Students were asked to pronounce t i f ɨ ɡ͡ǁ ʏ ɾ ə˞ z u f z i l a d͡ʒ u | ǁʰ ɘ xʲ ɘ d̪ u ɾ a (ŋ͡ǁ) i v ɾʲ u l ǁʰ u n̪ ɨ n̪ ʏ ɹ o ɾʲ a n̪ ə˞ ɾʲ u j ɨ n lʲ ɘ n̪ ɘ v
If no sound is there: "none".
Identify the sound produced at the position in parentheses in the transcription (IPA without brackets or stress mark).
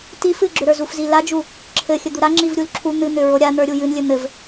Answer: ŋ͡ǁ